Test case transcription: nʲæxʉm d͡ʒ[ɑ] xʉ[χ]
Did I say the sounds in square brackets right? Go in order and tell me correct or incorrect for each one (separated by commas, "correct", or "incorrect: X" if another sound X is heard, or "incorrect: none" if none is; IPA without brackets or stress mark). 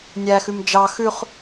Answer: correct, correct